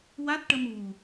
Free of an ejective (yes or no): yes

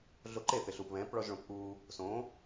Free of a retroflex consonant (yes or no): no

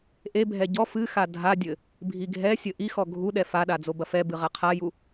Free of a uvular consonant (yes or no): no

